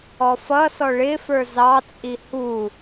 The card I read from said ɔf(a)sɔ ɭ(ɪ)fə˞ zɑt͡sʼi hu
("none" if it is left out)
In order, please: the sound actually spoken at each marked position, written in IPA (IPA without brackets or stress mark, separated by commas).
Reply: ʌ, ɪ